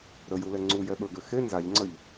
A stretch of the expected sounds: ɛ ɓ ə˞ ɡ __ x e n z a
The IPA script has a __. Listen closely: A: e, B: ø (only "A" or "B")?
B